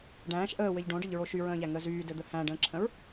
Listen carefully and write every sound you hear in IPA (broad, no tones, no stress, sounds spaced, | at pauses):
ɖ æ̃ː ʃ ʔ əː w ɘ ʎ ɖ õ ɖ ə ʎ ɹ o ʃ y ɹ ə̃ː ʎ æ ŋ əː z yː d ɘ d̪ ə h æ̃ ɖ ə̃ː ǁʰ ə̃ ɹ